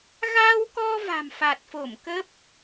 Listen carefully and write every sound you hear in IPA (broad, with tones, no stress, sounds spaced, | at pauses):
ɣ aː˧ w k ɔ˧ v a̤˨˩ m f a˨˩ t̚ f o˧˩ m k ə˦˥ p̚